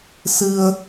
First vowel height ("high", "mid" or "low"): high